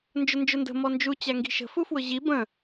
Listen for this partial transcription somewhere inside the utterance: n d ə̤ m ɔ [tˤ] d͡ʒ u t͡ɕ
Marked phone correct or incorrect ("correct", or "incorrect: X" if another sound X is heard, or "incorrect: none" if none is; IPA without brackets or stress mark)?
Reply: incorrect: n